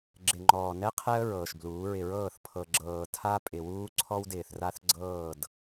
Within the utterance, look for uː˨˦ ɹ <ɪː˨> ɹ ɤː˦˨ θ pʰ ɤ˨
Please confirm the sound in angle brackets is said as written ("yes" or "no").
no